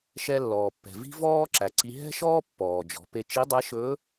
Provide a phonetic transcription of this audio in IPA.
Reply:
ʃ ɛ˧ lː ɔː˩ pː ɛ̤˩ v i̤˥ v ɔː˥ ǁ æ˩˧ ǀ i˧ ɦ ɛ̤˥ ʃ ɔː˥ pː ɔː˩ d͡ʒ ɔ̤˩˧ p e˧ t͡ʃ i˧˥ dˤ ɛ˧˥ ʃ ɵː˧˥

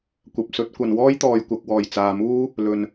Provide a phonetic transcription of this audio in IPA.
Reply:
kʷ ɐ˨ p̚ s ɵ˨˥ t̚ kʷ ɐ˨ n w ɔː˥ j t̪ ɔː˨ j kʷ ɐ˨ k̚ w ɔː˨˩ j t͡s aː˨ m uː˥ | l ɵ˨ n

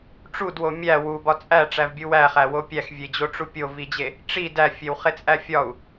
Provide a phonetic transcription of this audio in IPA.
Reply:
ʈ͡ʂ u d w o mʲ æ w u b ɒ t͡sʼ æ ʈ͡ʂ æ v bʲ u w æ χ æ w o pʲ æ x vʲ e d͡ʑ o ʈ͡ʂ u pʲ o v i d͡ʑ e | ʈ͡ʂ i d æ fʲ e w χ e t͡sʼ æ fʲ ɒ u̯

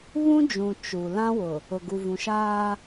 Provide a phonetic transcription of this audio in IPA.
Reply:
β ũ˦ d͡ʒ ũ˨ t͡ʃ u˨ l ã˦ w ʊ˨ | ʊ˨ ɡ u˨ v ũ˨ ʃ aː˦

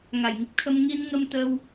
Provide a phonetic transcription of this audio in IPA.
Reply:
ŋ a˨˩ j ŋ i˦˥ k̚ t̪ʰ ə˧ m ŋ i˧ n ŋ ə˧ m t̪ ə˧ w

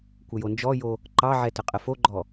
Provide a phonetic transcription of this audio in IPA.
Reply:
kʷ ə j o n d͡ʒ ɔ j o | ǃ ɑ ʕ ɛ t ə qʼ ə f o ɡ͡ǃ ɔ

